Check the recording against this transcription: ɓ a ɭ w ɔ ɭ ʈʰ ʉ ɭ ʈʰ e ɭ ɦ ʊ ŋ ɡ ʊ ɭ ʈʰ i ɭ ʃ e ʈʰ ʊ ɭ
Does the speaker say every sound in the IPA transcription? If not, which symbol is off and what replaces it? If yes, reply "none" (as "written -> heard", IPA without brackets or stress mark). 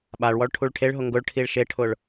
ʉ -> u